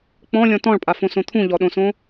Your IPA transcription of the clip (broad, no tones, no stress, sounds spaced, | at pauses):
k͡p ɔ̃ lʲ ɔ̃ t ɔ̃ ɭ pʼ a f õ s õ t̪ʰ ũ ʎ ɔ ɗ õ s õ